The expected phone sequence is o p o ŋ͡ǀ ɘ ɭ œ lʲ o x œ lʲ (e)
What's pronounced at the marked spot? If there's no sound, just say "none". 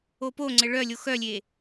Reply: e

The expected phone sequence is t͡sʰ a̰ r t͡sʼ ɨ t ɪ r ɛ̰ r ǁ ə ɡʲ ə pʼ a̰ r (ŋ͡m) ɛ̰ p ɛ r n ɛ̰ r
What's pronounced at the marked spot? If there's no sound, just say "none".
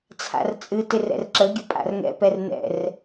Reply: ŋ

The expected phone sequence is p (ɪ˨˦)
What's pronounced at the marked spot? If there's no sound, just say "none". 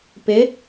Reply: ɪ˨˦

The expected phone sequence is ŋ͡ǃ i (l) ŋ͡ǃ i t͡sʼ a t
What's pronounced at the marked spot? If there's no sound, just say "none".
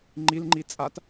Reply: l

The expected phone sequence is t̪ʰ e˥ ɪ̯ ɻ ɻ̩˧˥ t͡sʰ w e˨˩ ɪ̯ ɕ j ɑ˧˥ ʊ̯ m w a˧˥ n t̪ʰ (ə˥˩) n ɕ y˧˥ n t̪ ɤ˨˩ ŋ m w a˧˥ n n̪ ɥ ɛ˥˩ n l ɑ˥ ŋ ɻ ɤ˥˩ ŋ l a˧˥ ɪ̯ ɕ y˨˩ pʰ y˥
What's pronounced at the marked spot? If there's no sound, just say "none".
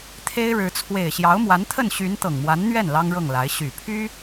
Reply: ə˥˩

